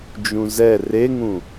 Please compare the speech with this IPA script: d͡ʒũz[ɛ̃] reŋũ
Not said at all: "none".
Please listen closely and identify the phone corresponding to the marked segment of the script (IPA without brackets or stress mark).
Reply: ɛ